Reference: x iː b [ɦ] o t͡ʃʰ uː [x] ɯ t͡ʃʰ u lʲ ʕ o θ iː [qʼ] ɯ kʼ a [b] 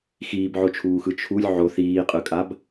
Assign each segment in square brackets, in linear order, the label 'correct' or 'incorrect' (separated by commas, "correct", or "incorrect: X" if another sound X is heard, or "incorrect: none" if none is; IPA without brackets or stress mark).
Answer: incorrect: ʕ, correct, correct, correct